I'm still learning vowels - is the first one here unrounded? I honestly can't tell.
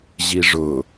yes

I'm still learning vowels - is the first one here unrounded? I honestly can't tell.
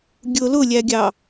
no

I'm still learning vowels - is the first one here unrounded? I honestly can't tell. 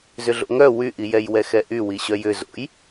no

